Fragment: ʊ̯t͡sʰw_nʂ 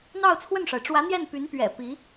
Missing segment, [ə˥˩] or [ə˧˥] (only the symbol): ə˥˩